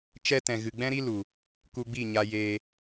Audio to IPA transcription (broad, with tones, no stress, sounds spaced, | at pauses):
t͡ʃ ɛ˦ t ɛ̃˨ ɣ ɨ˨ ɡ͡b ɛ̃˦ ɾ i˦ l u˨ | k u˧ ɡ͡b i˦˨ ɲ a˧ j eː˧